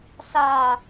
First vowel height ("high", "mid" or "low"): low